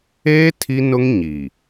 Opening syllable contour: high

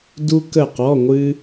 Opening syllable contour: high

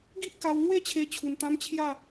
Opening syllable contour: high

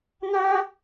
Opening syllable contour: high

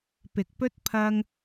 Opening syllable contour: low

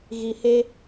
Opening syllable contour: low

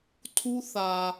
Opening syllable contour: high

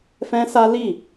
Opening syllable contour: high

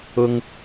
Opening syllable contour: high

